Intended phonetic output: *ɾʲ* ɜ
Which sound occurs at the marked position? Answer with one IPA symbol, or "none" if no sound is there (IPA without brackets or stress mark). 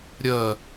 ɾʲ